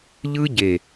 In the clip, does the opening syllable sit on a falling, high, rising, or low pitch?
high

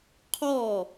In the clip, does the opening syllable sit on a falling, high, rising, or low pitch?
falling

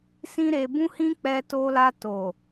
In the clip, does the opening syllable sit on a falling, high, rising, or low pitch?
high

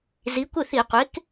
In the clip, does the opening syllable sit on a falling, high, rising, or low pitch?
rising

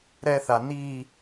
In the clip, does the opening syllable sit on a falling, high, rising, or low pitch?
high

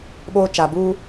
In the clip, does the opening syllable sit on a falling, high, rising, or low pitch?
high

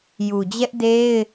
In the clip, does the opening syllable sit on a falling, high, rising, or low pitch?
low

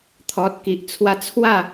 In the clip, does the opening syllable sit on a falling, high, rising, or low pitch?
low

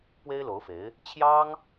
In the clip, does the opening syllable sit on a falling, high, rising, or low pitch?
high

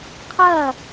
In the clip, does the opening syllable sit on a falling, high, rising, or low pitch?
falling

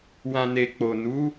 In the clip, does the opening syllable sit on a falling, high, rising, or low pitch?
low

